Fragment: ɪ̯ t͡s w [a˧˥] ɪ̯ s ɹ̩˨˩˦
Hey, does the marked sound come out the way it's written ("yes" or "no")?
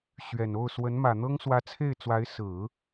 yes